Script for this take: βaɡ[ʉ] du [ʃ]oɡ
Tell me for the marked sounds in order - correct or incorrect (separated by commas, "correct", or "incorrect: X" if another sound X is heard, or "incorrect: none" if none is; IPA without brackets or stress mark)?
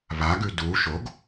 correct, correct